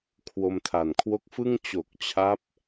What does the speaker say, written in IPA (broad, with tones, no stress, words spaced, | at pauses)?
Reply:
kʰwo˧mtʰa˨˩nkʰwo˦˥k̚fɯ˥˩ŋ t͡ɕo˨˩k̚t͡ɕʰa˦˥p̚